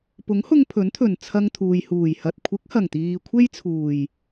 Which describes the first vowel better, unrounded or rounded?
rounded